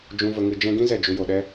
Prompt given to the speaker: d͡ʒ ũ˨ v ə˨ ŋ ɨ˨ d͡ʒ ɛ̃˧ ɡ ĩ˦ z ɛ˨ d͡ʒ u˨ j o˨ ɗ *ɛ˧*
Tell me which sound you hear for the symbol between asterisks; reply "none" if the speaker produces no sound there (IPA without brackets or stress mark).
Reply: ɛ˧